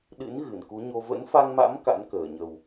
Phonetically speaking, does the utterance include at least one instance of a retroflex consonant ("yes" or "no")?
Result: no